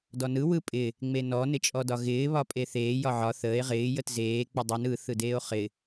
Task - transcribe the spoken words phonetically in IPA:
d ɔ n ɯ w ɯ pʼ ɪ | ŋ͡m e n ɔ n ɪ t͡ʃʼ ɔ d ɒ ɣ ɪː β ɒ pʼ e θ eː j ɒ ʕ ɒ θ əː e̯ ʁ ɪː j ə t z eː k͡p ə dˤ ɯ n ɯ θ ɯ d eː o̯ χ ɪ

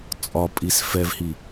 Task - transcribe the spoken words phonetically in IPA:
t͡sʼ ɒ pʼ i s f ɛ v h i

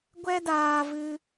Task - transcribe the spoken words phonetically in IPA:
ɡʷ ɛ˦ d aː˧ v ɨ˧

